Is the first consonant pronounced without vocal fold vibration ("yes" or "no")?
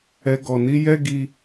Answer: no